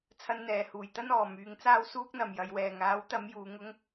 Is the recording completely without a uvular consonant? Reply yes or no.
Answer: yes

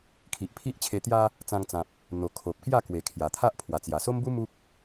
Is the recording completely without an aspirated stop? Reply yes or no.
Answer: no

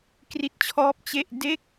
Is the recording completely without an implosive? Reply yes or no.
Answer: yes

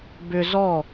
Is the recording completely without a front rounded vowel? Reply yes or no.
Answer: no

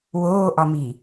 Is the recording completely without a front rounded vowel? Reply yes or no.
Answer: yes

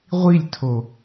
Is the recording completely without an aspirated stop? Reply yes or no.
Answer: no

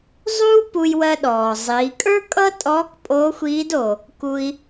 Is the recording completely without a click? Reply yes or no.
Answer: yes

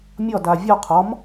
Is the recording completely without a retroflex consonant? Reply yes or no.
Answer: yes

